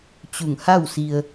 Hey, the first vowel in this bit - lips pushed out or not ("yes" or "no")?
yes